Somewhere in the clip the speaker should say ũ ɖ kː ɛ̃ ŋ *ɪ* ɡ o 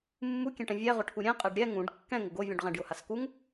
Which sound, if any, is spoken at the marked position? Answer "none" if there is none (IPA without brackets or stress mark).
ɪ